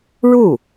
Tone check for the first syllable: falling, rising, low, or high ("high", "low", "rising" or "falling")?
falling